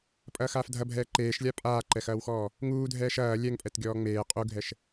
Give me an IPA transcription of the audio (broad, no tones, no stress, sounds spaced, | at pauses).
pʼ ɐː x aː f dʱ ɐ bʱ ɛː ǃ eː ʃ lʲ a pʼ aː ǃ ɛ x ɐː w x ɔː | ŋ uː dʱ ɛː ʃ ɐː lʲ ɛ ŋ pʼ ɛ t ɡʲ ɔː ŋ͡m eː qʼ u ɡʱ ɛ ʃ